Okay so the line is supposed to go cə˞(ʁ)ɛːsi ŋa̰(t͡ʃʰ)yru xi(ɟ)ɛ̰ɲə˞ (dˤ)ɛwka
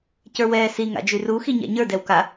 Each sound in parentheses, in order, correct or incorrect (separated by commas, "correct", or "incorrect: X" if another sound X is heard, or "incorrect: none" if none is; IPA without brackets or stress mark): incorrect: w, incorrect: d͡ʒ, incorrect: ɲ, incorrect: d